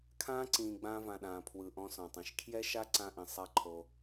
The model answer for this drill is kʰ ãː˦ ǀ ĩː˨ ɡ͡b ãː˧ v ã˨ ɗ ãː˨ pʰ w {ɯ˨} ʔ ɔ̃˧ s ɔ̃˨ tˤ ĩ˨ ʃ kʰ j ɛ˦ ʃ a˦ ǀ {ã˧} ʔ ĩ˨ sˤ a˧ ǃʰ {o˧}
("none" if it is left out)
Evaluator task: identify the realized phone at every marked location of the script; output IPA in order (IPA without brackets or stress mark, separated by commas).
ɯ˨, ã˧, o˧